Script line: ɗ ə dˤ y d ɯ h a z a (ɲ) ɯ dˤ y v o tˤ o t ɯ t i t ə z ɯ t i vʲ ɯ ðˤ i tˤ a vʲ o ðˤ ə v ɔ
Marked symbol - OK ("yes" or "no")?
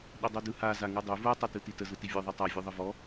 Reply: no